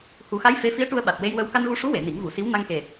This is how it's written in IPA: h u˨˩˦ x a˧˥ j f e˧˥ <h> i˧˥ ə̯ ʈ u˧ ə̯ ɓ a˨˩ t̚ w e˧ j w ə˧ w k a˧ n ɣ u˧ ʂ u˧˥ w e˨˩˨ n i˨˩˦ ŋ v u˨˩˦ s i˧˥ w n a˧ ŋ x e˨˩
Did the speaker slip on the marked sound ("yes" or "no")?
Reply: yes